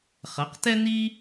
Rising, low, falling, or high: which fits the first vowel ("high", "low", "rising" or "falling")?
rising